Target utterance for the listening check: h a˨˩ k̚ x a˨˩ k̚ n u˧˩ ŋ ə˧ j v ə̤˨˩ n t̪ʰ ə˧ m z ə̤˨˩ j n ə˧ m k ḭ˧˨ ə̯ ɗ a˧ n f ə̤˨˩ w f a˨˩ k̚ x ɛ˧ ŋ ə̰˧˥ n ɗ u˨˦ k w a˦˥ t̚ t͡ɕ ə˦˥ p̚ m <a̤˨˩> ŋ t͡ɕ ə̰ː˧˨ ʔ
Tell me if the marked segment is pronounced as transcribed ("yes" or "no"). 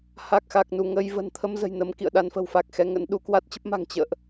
yes